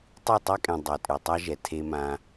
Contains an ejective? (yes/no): yes